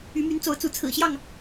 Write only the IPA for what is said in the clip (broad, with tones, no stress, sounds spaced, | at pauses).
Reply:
y˨˦ m y˨˦ n t͡s o˨˦ ʊ̯ t͡s u˨˦ t͡sʰ ɹ̩˨˩ ɕ j ɑ˥˨ ŋ